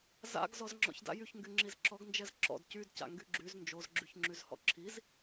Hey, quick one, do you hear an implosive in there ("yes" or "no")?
no